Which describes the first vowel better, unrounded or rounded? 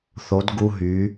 rounded